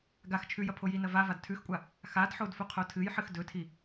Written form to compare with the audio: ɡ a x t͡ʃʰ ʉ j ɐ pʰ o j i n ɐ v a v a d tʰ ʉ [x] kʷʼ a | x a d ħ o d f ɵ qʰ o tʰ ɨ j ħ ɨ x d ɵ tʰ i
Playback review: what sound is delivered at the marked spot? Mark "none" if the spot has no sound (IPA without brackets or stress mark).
x